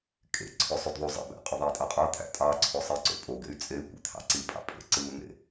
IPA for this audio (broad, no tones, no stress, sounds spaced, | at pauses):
kʼ ḛ ǀʰ ø sˤ y d ðˤ u zˤ ḛ b æ̰ qʼ ø ðˤ æ i̯ tʼ ɑ qʼ ɑ t̪ʰ æ̰ tʼ ɑ ǀʰ o sˤ i ǀ o̰ pʼ o ɡ ḛ y̯ t͡sʼ e y̯ kʷ ḛ t̪ʰ ɑ̰ ǀ i pʼ ɑ̰ pʼ ḛ ǀ ɯ u̯ n̪ ḛ